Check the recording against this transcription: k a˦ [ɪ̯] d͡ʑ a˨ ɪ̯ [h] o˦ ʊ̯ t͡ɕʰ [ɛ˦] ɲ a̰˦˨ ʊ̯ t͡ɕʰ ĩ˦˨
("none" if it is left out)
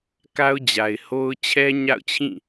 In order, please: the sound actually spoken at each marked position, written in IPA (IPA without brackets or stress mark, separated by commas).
ʊ̯, h, ɛ˦